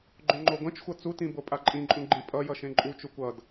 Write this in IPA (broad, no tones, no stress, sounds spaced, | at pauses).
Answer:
ɡ͡ǃ õ ŋ͡ǃ o ɡʷ ɛ̃ t͡ʃ xʷ ʌ t͡s u t ĩ b o pʼ a ǃʼ ĩ ǃʼ ũ ɡ͡ǃ ĩ pʼ ʌ j ʌ ʃ ẽ ǃʼ u t͡ʃ u kʷ ʌ d